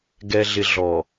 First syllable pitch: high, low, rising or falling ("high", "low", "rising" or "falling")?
low